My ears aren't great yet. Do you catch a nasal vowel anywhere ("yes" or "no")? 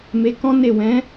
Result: yes